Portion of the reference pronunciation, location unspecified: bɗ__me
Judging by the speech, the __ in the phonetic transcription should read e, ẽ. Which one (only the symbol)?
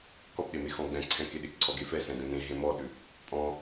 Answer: e